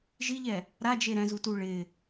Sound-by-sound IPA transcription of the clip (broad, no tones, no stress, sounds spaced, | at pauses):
ʒ i ʎ ɛ | ɾ a d͡ʒ e ɾ ɛ̃ z u t u ɭ ɪ